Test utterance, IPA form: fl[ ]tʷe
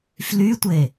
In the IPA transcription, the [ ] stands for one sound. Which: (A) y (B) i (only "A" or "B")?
A